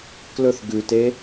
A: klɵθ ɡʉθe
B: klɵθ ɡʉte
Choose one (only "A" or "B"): B